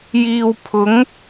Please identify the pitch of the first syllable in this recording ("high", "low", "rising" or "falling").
low